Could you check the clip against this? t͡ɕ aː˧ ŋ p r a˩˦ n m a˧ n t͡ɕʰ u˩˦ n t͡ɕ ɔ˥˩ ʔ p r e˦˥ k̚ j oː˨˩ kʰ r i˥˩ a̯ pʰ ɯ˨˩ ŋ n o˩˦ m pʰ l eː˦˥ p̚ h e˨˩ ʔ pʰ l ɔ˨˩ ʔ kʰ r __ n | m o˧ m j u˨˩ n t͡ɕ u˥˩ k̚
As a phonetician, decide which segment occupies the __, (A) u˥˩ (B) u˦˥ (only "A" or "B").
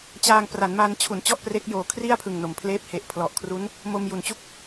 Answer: B